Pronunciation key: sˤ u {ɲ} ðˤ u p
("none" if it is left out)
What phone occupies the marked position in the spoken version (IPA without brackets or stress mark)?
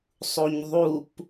ɲ